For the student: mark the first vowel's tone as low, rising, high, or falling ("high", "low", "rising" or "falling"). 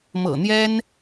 low